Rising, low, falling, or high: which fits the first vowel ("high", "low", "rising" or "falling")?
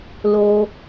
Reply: high